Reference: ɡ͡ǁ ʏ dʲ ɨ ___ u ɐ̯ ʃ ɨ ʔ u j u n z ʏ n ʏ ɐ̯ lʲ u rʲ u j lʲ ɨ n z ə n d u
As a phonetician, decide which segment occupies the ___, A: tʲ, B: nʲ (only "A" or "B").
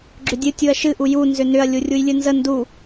A